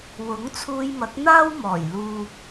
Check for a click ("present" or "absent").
absent